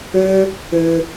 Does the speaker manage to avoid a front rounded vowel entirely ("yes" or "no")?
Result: no